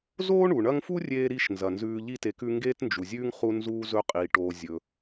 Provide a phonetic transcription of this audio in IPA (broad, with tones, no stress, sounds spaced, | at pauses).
z oː˥ ɳ u˩ ɳ ɐ˦ ŋ f u˥ rʲ eː˦ ɾ i˦ ʃ n z ɐ˩ n z ʉː˨ ʎ i˥ t e˨ k ʉ˦ ŋ ɡ eː˥ t n d͡ʒ u˩ zʲ ʉː˥ ŋ χ u˥ n z uː˥ z ɵ˥ qʼ iː˩ ʈ oː˨ zʲ ɵ˩